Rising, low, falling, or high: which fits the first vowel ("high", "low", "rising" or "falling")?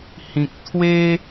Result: low